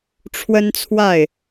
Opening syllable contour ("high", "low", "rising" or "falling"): high